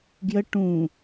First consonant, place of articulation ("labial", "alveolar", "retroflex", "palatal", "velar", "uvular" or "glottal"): velar